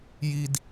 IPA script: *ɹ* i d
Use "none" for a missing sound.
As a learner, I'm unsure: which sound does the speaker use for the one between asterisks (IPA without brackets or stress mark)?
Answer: j